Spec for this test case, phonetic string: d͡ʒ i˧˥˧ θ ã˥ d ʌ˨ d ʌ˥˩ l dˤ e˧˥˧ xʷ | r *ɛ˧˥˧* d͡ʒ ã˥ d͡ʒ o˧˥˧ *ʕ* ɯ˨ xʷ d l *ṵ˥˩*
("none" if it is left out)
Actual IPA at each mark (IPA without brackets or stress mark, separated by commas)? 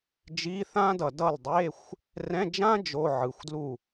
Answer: ɛ̃˧˥˧, ʕ, u˥˩